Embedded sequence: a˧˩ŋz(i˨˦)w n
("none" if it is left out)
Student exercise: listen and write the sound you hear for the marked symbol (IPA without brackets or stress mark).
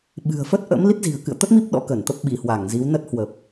i˨˦